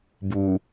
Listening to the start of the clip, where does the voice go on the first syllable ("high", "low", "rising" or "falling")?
low